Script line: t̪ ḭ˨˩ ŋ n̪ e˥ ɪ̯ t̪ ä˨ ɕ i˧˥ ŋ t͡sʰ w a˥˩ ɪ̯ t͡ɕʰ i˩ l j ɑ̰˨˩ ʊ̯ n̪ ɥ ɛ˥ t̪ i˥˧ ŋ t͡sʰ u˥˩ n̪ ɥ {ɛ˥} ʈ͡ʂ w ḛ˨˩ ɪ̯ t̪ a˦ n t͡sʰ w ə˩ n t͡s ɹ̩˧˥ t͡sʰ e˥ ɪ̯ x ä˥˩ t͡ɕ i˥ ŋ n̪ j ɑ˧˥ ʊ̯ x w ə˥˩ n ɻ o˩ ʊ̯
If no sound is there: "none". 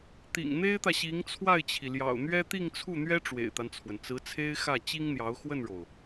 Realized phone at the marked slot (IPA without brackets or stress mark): ɛ˥